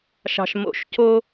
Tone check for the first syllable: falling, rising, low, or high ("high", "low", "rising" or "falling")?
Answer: low